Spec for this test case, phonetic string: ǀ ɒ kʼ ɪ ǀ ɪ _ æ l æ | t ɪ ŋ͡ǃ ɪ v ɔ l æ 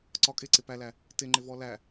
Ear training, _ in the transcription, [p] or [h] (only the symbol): p